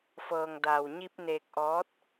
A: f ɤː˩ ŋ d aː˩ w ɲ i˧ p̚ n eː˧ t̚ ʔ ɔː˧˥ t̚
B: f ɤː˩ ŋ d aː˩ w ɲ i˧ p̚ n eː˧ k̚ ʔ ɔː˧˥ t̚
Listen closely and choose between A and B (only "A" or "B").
B